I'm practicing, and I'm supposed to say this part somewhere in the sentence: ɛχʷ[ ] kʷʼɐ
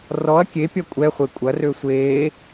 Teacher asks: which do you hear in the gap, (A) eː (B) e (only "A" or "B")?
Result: B